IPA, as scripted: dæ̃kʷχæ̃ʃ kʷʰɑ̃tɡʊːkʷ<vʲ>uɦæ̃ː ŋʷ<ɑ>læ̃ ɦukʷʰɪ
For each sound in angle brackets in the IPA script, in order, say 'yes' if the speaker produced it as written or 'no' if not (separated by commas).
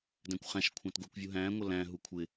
yes, no